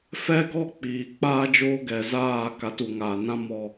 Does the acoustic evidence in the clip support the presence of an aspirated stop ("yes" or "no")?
no